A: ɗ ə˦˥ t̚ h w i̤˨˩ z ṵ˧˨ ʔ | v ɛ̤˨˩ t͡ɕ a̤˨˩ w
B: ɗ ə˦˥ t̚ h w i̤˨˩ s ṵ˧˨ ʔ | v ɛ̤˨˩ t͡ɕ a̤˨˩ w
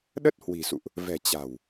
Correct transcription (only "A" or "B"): B